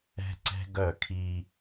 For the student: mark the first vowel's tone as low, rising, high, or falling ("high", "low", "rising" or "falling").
high